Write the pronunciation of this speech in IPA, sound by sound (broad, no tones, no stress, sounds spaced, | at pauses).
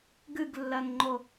ɡ ɨ ɡ lː ɜ ŋ ŋ͡ǃ o